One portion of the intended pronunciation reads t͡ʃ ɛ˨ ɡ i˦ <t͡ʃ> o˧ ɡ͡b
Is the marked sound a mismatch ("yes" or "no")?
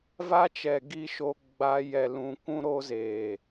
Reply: yes